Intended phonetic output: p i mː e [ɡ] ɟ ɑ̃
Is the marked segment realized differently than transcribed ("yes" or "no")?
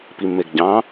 no